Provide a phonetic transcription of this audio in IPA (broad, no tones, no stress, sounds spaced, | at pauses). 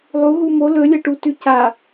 lˠ u ɦ u m o l ɵ lʲ ɐ ʈ u t ʉ c a